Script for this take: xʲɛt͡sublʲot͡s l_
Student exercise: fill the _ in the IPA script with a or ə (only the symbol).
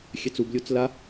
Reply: a